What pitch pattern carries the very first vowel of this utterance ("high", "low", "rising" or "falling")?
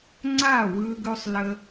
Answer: falling